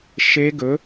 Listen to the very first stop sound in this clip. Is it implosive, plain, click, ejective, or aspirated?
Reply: plain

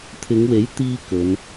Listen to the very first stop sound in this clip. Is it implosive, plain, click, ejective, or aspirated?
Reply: aspirated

